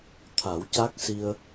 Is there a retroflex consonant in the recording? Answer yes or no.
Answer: no